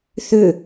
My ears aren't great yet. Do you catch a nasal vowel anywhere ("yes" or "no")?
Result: no